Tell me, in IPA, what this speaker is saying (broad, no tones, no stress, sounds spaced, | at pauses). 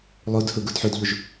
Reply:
lˠ u d h u ɡ u d ħ u d ʎ u ʒ